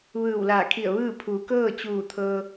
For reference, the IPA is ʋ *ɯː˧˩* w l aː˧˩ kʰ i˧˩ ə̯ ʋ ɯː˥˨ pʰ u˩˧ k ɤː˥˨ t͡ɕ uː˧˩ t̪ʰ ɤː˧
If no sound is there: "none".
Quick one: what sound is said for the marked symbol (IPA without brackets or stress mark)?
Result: ɯː˧˩